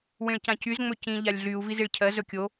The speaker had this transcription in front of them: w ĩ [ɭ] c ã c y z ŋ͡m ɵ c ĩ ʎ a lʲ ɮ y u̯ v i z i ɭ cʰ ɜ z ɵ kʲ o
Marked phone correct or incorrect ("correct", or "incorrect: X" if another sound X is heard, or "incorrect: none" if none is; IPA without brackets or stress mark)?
correct